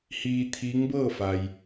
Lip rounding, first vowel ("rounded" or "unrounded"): unrounded